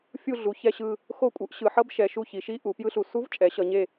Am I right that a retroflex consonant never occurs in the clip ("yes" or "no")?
yes